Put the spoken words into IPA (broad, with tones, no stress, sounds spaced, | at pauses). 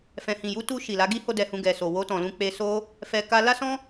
f ɛ̃˨ h ĩ˨ j u˨˦ t u˧ ʃ i˨ l a˨˦ ɡ i˦ h o˦ d ɛ˧ h ũ˧ ɡ ɛ˨ s o˨ w o˧ t ɔ̃˨ l ũ˧ k͡p e˧ s o˦ | f ɛ˧ k a˧ l a˦ s ɔ̃˦